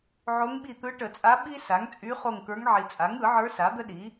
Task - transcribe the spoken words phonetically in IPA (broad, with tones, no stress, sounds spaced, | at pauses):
ʕ o˧˥ ŋ ɓ i˦˨ t̪ ɯ˧˥ ʈ ə˨˩˦ t͡sʼ a˧˥ ɓ i˥ s a˩˥ ŋ t͡sʼ y˧˥ χ o˦˨ ŋ k ə˞˧˥ ŋ ʕ i˨ t͡sʼ a˩˥ ŋ ɯ˨˩˦ ʕ ə˞˧˥ s a˩˥ d̪ ə˥ ɗ i˩˥